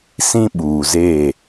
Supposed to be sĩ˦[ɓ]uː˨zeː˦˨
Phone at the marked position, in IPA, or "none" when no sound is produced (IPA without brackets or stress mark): ɓ